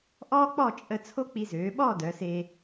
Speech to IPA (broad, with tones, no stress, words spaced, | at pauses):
ʔɔː˥k͡pɔ˥˧t͡ʃʼə˧ t͡sʰo˥k͡pi˧zøː˩˧ɓɔː˥˧ dœ˩˧se˧